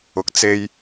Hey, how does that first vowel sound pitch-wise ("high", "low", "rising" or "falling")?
low